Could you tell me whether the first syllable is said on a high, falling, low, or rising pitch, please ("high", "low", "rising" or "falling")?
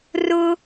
high